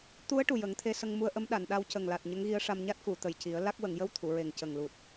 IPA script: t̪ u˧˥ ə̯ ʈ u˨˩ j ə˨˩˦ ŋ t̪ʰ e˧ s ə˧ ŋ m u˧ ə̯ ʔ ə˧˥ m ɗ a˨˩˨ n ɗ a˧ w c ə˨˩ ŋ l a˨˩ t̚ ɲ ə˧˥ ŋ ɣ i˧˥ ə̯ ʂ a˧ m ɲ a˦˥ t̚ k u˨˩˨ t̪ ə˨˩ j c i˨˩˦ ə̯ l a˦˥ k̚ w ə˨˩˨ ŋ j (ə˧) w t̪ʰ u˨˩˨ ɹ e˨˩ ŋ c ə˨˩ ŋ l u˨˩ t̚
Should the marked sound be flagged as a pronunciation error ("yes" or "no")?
no